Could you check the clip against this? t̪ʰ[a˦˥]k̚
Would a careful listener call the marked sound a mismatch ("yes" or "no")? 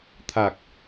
yes